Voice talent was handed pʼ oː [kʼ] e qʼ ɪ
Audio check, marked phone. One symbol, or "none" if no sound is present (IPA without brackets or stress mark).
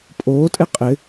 tʼ